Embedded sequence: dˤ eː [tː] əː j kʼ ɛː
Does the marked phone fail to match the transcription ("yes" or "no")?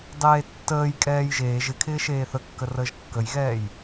no